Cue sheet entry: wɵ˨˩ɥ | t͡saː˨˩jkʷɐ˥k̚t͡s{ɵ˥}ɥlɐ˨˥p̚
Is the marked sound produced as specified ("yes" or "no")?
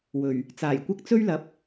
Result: yes